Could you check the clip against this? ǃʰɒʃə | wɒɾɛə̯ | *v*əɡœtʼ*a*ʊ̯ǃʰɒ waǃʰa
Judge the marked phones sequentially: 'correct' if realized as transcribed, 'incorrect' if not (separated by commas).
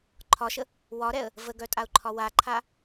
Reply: correct, correct